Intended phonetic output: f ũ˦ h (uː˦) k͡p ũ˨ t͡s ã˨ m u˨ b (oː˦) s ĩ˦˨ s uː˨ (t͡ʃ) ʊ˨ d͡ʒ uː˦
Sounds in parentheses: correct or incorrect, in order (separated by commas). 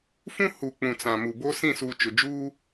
incorrect, incorrect, correct